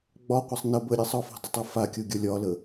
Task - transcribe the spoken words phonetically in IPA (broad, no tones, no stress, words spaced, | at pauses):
ɡ͡bɒqʷasˤ nə bəɾʲesˤ ɒfɔ̤dˤʏtˤo fakʲoɡʲɒ lʲɒlə